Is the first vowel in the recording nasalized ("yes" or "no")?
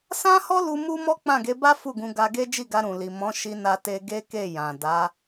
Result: yes